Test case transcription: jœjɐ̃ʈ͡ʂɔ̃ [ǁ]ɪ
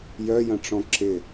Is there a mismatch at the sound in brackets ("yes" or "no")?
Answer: no